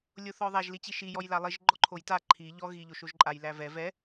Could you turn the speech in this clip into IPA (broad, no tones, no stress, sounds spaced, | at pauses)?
lʲ o θ ɔ ðˤ æ ʒ l i t͡ɕ i ʃ i j ɔ j l a lˠ i ʒ ɡ͡ǃ ɔ ǃʰ o j t a ǃʰ i ʎ ɔ ɣ i ʎ o ʃ o ʒ ǃʼ a j l æ v ɛ v ɛ